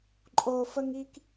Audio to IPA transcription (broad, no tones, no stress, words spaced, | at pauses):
ǃʼofəŋik